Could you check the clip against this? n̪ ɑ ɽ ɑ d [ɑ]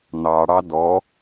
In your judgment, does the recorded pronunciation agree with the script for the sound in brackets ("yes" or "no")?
no